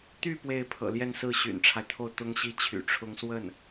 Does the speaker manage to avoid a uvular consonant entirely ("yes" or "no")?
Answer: yes